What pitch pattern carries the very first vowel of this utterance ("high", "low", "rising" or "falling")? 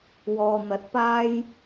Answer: low